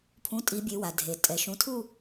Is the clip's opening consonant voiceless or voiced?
voiceless